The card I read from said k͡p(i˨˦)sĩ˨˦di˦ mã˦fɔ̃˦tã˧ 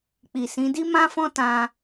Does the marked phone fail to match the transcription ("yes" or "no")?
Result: yes